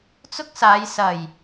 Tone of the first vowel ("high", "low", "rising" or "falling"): high